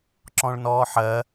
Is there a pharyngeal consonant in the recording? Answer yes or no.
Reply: yes